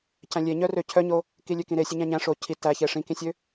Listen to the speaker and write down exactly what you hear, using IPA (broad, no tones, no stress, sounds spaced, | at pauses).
c æ̃ lʲ e ɲ œ r ø cʰ œ ɲ o | k i lʲ ø k ĩ ɾ e sʲ ø ɲ æ̃ ɲ æ̃ ʂ o cʰ i t æ ç e ʂ ĩ k ĩ sʲ ø